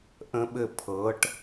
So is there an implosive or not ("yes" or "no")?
yes